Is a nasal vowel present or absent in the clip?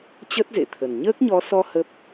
absent